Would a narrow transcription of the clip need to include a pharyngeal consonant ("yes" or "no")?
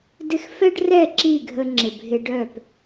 no